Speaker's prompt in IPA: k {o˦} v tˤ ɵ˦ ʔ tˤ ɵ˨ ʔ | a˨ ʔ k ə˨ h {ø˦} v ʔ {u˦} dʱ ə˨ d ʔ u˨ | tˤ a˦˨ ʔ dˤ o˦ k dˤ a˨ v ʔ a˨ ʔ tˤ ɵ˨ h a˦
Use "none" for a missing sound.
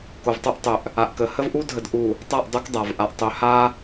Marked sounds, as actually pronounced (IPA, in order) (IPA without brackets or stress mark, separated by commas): o˨, ə˦, u˦